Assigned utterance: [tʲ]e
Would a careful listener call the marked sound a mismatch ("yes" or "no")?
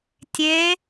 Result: no